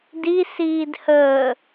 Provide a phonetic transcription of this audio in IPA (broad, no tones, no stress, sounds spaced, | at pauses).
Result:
d i s iː d h əː